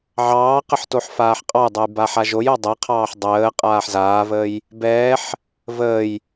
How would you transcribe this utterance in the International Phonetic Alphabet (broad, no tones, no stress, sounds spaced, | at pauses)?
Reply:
ʕ ɑː q ə ħ t o ħ f aː ħ qʼ ɑ j dˤ o j b a ħ a ʒ o j o dˤ ɛ qʰ ɑː ħ dˤ əː qʼ aː ħ z aː v əː j | b ɛː ħ | v əː j